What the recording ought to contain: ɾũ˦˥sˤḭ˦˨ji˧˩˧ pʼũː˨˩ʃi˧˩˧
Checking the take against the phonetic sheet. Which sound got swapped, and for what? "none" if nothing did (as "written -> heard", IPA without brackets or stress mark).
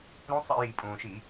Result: none